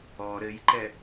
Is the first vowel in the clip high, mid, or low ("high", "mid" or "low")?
mid